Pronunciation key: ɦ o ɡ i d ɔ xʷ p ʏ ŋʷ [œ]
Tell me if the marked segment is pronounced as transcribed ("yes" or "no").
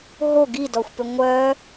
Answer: yes